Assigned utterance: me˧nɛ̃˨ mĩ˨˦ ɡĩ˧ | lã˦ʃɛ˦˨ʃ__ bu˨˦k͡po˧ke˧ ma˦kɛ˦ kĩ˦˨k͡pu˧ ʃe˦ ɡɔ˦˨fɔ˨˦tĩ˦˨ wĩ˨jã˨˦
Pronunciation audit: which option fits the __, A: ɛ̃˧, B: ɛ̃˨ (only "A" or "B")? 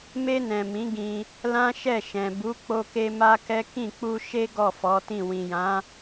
B